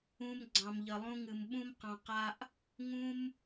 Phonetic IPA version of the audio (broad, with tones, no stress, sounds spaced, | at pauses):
ũ˧ m ɡ͡ǀ ɑ̃˨ m ʎ ə˨ lˠ ũ˧ ŋ ɨ˨ m ɓ ũ˦ m q ɑ̃˧ q a˧ ʔ | ŋ ũ˦ m